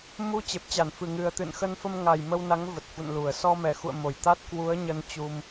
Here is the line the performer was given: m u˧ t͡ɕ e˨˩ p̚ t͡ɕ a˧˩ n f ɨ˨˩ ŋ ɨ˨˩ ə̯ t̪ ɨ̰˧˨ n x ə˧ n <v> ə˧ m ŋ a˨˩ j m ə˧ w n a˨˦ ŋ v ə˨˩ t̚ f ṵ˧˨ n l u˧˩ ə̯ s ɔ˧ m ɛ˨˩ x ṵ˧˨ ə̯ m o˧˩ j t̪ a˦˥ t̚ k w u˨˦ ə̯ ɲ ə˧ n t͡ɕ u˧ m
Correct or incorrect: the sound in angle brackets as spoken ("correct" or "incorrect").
incorrect